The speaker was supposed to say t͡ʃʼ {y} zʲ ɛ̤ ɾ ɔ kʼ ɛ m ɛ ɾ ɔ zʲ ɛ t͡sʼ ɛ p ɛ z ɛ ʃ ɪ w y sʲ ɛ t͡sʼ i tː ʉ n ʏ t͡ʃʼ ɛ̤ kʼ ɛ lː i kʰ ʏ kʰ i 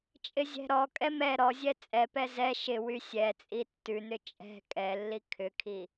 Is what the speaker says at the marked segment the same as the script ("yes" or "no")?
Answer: no